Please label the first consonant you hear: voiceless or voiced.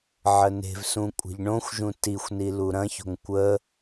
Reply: voiced